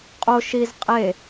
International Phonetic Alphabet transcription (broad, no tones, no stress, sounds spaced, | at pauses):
qʼ o ʃ i z qʼ e